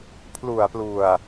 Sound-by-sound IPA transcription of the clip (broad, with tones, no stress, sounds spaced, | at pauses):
pʰ l u˨˩ a̯ p l u˨˩ a̯